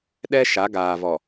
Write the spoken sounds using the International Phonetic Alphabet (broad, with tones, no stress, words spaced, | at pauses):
ɗɛ˦ ʃa˨˦ɡaː˨vɔ˨